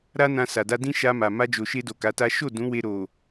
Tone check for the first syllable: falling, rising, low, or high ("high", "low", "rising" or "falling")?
high